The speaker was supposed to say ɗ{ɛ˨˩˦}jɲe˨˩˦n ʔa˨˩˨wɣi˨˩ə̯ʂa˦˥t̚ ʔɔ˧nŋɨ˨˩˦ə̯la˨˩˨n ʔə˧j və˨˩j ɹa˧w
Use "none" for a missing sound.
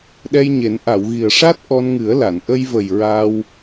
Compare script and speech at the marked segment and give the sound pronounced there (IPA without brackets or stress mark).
ɛ˧